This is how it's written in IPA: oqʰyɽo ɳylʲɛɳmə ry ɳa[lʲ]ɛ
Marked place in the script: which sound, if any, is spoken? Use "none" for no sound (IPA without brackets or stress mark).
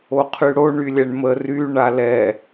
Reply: l